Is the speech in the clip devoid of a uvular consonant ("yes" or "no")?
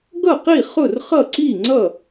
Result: no